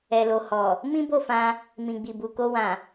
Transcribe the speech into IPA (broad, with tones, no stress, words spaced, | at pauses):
ɛ˨lo˨hɔ˨ | mĩ˦bo˦˨fã˧ | mĩ˨ɡ͡bi˨bu˨ ko˧wã˨